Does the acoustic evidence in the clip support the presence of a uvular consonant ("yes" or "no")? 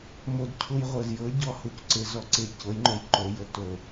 yes